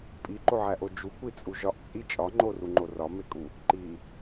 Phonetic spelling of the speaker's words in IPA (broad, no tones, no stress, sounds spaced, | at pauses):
pʼ i ǃ o ʕ æ ʔ o d͡ʒ u kʷ i t͡sʼ u ʒ ɒ ʔ t͡sʼ i t͡ʃʼ ɒ ŋ͡ǃ o r u ŋ͡ǃ o r ɒ m e kʼ u | ǃ i